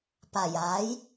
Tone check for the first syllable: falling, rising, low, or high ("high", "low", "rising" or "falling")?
low